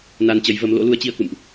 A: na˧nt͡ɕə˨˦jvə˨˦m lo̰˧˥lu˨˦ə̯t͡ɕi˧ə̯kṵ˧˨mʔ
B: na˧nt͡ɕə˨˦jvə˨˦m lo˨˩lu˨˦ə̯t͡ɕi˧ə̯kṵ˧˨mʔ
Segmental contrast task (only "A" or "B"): A